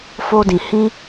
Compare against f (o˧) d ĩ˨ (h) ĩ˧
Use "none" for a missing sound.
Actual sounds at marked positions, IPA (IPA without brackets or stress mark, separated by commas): o˧, h